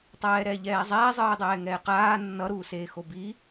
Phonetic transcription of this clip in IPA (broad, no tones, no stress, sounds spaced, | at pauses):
tˤ ɛː ɾ ɛː ʎ ɛː zˤ ɛː zˤ ɯː dˤ ɛː ŋ ɛː q aː nː ʌ ɾ uː s eː x o b i